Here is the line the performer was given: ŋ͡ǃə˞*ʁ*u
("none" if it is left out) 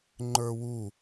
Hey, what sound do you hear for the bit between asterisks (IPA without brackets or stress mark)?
w